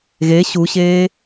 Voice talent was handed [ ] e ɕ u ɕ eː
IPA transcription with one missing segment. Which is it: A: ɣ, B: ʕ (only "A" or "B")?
A